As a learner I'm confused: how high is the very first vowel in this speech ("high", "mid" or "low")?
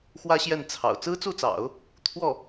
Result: low